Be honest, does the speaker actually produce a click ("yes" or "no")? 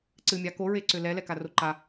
yes